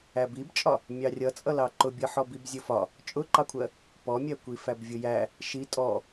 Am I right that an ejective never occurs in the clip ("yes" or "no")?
no